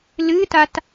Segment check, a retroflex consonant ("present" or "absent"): absent